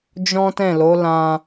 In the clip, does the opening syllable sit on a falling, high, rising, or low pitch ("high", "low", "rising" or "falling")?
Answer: high